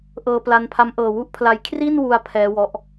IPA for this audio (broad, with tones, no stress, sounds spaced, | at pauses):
ʔ ɤː˧ p l a˧ n pʰ a˦˥ m ʔ ɤː˧ w u˥˩ ʔ pʰ l a˦˥ j kʰ r i˥˩ n w u˧ a̯ pʰ ɛː˦˥ w ɔ˦˥ ʔ